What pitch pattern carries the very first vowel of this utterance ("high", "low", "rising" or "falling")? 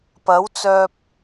rising